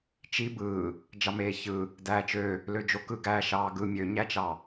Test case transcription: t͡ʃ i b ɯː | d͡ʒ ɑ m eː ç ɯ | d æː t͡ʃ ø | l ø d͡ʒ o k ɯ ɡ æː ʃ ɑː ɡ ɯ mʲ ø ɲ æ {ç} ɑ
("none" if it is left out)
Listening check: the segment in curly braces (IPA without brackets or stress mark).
t͡ʃ